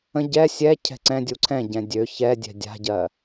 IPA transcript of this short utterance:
ə̃ ɟ ɛ sʲ ɛ cʰ ɛ̤ ǀ ɛ̃ dʲ u ǀʰ ɛ̃ ɟ ɛ̃ dʲ ø ç ɛ dʲ ɛ̤ dʲ a̤ ɟ ɜ

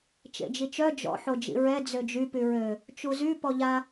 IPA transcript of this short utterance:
t͡ʃ ḛ d͡ʒ i t͡ʃ œ d͡ʒ ɔ̰ ħ o d͡ʒ ḭ ɹ ɛ d͡z ø d͡ʒ y p y ɹ ø | t͡ʃ u z y p ɔ ʎ a

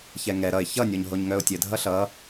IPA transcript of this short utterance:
ç ɛ ŋ ɛ ɾ ʌ ɪ̯ ç ʌ nʲ ɔ ɲ ɦ o ɲ ŋ œ ʊ̯ tʲ ɘ dʱ ʌ ɬ ʌ

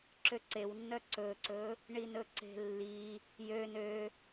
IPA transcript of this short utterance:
ǁ ø ǀ e w nː œ ǀ ɵ ǀ ɵ | ɳ i n ɵ ǀ e̤ lː i | j ø n ø

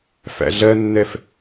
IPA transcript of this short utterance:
f æ̰ ɮ ɜ nː ɛ f

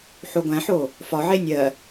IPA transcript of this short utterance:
ħ o ɡʷ æ̃ ħ o | f ɒ ʕ e nʲ ɜ

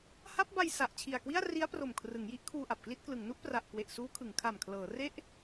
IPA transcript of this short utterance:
h a˦˥ p̚ b a˧ j s a˨˩ ʔ t͡ɕʰ i˨˩ a̯ k w i˥˩ a̯ r i˦˥ a̯ p r o˨˩ m kʰ r ɯ˩˦ ŋ j i˦˥ ʔ kʰ uː˧ ʔ a˨˩ p̚ k l i˥˩ t̚ k l ɯ˩˦ ŋ n u˦˥ ʔ p r a˨˩ ʔ k w e˨˩ ʔ s uː˦˥ kʰ ɯ˩˦ ŋ kʰ a˨˩ m kʰ l ɤː˩˦ r e˥˩ ʔ

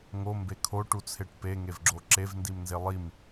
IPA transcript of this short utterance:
ŋ o m b e kʰ o ʈ u t͡sʰ e ʈ p e ŋ e v ɡ͡ǁ o ǁ e v n d i m n z e lˠ i m

